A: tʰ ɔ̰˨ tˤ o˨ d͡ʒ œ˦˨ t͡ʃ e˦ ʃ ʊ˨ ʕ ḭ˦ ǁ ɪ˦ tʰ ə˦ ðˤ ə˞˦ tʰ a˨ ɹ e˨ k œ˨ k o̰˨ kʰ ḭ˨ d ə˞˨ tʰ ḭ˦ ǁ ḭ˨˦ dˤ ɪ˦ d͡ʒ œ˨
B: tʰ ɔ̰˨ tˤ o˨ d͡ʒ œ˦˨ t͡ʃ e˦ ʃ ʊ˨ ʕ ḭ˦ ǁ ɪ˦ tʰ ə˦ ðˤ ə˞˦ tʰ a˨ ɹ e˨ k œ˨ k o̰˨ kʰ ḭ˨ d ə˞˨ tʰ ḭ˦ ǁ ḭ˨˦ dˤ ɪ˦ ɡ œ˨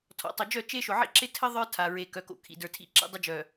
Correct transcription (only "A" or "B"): A